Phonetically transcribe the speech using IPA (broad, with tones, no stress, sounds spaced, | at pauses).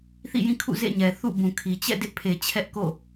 θ ḭ˦˨ j ĩ˦˨ kʰ ṵ˦˨ z ḛ˦˨ ɲ ɛ˨ θ ṵ˦˨ b ũ˨ kʰ i˨ t͡ɕ ɛ̰˦˨ d ɪ˦ ʔ pʰ e˨ t͡ɕʰ ɛ˦ ʔ k o̰˦˨